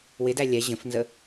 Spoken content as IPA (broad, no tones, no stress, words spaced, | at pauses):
wɪdæ lʲɛ ʑə̃fnzə